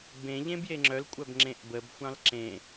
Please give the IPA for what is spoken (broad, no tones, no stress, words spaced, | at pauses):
bẽ ʎẽbjeŋ͡ǁœlkʷʼœb ŋ͡ǁẽʔbəbxʷɑ̃l ǁẽ